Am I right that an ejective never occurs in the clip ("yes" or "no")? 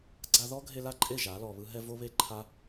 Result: no